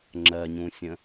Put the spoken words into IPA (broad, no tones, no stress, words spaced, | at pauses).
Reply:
ŋ͡ǁɜɲũsʲə̃